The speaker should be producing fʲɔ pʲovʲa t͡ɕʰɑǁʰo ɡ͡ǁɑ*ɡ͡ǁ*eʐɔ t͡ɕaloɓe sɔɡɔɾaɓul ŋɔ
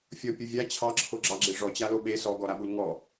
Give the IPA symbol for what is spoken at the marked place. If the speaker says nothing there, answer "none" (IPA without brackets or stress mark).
ɡ͡ǁ